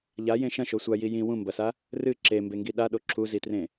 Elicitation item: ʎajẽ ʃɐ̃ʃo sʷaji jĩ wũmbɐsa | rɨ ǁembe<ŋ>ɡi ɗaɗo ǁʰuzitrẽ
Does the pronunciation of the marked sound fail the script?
no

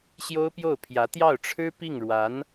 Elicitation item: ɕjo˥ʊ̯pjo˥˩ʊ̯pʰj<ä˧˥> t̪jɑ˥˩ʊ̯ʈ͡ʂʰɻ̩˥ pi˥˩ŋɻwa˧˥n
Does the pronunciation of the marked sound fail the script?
no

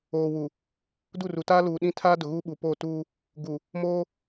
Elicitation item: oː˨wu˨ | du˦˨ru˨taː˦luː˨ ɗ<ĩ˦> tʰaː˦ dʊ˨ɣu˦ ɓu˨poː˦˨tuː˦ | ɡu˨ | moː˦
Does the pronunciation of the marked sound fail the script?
no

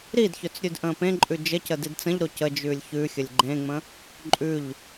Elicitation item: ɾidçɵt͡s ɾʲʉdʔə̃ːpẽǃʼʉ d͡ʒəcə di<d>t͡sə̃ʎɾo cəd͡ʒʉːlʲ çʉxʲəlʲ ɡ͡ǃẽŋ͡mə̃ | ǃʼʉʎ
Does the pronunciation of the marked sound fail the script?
no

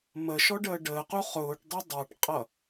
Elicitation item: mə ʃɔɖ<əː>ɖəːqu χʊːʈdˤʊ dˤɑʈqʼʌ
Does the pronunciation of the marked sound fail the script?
no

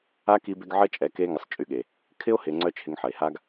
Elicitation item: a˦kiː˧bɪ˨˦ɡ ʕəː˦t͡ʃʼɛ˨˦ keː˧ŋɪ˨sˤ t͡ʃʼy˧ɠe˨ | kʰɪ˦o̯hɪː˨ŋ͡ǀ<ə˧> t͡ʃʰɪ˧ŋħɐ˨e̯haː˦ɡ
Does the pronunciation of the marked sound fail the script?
yes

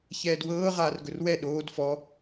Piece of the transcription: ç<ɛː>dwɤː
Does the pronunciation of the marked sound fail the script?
no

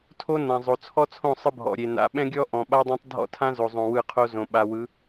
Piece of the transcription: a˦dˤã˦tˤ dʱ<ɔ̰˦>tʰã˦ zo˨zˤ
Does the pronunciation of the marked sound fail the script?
no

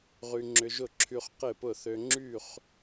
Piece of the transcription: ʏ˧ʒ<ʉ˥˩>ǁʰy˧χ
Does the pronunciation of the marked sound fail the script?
yes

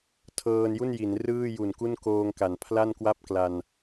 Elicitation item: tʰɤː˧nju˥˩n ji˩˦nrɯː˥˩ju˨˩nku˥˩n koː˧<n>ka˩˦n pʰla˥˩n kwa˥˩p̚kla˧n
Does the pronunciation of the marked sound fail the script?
yes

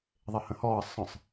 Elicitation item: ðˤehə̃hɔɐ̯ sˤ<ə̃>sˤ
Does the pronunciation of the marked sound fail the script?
no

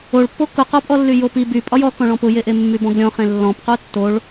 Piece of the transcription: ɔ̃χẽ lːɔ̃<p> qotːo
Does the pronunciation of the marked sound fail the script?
no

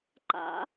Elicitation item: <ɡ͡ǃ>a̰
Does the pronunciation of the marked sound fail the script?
yes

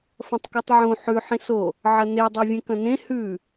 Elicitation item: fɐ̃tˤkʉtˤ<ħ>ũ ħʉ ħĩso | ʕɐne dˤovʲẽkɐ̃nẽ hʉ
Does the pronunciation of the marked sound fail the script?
yes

